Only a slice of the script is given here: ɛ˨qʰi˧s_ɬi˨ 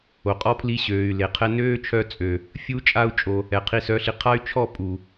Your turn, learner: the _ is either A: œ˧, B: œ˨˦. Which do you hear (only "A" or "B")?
B